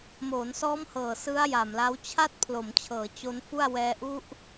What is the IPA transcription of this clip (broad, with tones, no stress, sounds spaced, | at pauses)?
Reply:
m oː˩˦ n s ɔː˦˥ m h ɤː˨˩ s ɯ˦˥ a̯ j a˨˩ m l a˦˥ w t͡ɕʰ a˥˩ t̚ pʰ l o˩˦ m t͡ɕʰ ɤː˩˦ t͡ɕ o˦˥ n f u˥˩ a̯ w ɛː˧ ʔ u˦˥ ʔ